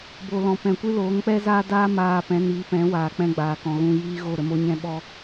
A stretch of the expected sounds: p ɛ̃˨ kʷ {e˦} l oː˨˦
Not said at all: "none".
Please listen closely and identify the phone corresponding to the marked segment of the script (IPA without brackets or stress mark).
ɨ˦